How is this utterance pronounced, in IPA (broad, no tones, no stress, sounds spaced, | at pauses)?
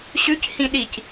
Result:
ɕ ʉ c h ĩ ɗ i c